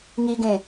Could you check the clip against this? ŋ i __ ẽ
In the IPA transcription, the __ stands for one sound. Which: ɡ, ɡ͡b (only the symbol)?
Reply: ɡ